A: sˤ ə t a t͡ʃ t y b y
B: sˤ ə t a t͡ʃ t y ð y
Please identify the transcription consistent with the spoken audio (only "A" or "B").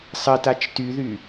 B